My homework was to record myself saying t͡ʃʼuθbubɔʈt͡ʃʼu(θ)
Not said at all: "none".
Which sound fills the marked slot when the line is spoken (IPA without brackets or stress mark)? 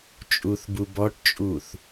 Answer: θ